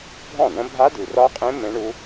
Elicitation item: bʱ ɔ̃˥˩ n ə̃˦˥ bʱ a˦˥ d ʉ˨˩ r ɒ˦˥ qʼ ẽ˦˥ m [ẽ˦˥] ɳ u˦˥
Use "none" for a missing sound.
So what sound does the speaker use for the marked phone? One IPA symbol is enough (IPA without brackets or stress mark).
ẽ˦˥